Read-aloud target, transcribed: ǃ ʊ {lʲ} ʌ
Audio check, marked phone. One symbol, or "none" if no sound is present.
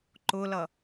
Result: l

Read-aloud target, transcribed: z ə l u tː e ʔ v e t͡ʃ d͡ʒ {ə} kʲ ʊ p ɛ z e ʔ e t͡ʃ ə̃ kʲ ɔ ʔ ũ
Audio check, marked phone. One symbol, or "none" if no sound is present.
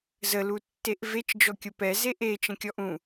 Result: ɔ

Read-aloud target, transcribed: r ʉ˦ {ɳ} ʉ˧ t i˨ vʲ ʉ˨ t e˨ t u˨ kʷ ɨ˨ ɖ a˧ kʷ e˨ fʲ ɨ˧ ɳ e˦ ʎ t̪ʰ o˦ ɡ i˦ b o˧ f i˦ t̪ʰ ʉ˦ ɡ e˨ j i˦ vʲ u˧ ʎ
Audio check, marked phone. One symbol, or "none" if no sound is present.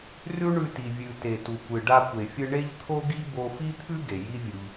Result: ɳ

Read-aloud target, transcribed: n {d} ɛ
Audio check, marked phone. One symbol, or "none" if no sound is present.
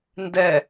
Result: d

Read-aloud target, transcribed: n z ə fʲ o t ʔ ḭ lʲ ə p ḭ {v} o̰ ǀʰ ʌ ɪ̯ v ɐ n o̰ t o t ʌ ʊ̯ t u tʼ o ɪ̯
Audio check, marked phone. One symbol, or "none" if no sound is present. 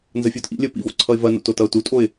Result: v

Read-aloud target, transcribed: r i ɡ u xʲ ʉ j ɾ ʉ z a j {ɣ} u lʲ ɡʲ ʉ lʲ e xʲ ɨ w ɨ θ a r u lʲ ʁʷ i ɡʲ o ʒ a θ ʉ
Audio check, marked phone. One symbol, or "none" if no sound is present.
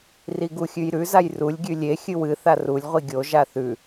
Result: r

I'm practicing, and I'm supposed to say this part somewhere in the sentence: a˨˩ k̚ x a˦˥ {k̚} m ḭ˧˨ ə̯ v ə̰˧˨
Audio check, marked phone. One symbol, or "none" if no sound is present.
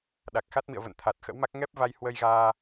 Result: t̚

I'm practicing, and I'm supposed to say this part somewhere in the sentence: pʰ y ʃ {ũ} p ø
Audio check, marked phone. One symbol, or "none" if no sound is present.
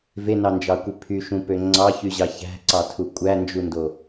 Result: ũ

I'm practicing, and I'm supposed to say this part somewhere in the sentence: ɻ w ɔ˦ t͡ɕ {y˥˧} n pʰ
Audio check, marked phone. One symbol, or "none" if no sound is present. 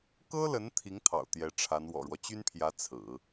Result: y˥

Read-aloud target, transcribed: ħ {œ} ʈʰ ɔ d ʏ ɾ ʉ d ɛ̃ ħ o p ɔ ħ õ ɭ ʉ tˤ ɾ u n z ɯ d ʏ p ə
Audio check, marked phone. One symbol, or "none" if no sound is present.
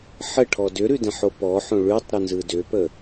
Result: ə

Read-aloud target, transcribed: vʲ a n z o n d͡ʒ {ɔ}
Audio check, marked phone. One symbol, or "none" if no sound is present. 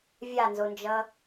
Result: ʌ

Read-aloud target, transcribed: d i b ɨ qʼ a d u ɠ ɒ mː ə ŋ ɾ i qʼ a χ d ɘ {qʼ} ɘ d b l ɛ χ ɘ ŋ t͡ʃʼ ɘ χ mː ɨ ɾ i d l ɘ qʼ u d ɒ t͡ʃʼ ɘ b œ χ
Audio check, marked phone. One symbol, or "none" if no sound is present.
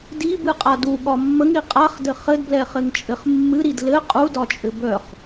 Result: χ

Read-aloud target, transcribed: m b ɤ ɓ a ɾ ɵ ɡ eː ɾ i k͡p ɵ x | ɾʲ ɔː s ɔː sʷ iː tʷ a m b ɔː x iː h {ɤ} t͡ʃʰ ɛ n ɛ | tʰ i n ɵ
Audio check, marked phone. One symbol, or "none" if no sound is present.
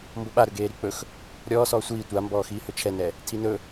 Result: ɵ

